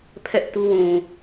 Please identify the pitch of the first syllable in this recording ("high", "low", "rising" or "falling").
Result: high